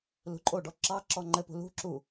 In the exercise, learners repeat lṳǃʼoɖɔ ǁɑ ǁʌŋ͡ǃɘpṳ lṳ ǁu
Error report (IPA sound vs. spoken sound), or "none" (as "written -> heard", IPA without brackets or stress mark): ʌ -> ɔ